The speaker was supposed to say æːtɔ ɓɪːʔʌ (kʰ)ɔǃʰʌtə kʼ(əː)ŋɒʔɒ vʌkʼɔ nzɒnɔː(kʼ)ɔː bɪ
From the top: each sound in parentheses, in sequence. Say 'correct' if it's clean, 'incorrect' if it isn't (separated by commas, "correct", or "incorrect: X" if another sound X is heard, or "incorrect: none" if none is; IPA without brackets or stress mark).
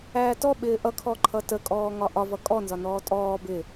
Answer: correct, incorrect: ɔː, incorrect: tʼ